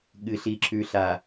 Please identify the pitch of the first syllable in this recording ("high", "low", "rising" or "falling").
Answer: low